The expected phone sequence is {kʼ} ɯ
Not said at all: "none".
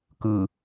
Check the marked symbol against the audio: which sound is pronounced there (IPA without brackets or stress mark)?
k